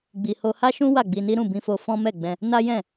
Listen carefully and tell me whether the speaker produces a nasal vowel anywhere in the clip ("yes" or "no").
yes